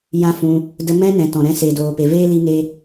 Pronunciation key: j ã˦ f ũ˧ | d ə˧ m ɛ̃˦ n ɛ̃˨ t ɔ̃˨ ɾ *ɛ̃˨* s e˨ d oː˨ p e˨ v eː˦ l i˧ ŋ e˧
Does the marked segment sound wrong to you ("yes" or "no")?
yes